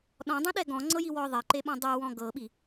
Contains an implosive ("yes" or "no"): yes